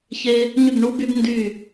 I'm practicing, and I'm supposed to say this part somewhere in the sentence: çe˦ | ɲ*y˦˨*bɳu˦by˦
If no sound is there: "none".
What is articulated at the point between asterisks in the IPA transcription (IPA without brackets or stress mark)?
y˦˨